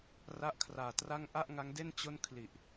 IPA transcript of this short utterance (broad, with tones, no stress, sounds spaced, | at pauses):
r a˦˥ ʔ kʰ r aː˨˩ t r a˥˩ ŋ ʔ a˥˩ ʔ ŋ a˦˥ ŋ d e˥˩ n t͡ɕ o˥˩ n kʰ l i˨˩ ʔ